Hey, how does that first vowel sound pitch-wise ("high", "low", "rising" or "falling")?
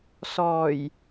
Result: low